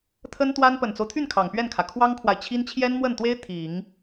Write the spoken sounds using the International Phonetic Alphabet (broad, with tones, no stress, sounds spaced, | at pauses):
t̪ʰ ə˥ n t̪ w a˥ n p ə˨˩ n t͡s o˦ ʊ̯ t̪ʰ y˥˩ n kʰ ɑ˨˩ ŋ p ɥ ɛ˥˩ n kʰ ä˩ kʰ w ɑ˥ ŋ kʰ w a˨ ɪ̯ t͡ɕʰ i˥ n t͡ɕʰ j ɛ˥ n m w ə˥˩ n t̪ w e˥ ɪ̯ t̪ʰ i˨˩˦ ŋ